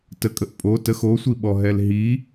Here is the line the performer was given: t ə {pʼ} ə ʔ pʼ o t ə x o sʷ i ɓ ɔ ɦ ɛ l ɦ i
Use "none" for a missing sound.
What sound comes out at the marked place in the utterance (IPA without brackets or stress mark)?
kʼ